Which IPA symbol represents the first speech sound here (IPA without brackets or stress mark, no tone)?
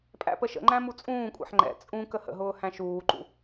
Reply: pʼ